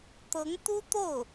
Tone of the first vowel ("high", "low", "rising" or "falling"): rising